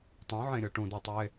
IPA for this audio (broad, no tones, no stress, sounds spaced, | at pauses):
tˤ ũ ʕ ẽ ɾʲ ɔ ʈ ũ d o tˤ e